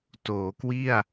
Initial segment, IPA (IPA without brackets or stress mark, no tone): t